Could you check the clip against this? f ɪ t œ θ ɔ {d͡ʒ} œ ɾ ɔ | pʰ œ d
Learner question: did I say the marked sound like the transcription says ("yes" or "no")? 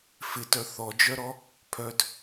yes